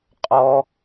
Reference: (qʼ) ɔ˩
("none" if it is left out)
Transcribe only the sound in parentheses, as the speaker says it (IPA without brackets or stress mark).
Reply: qʼ